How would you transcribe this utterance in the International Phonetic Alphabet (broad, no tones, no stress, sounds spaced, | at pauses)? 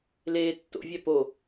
l eː tː o̰ vʲ æ p o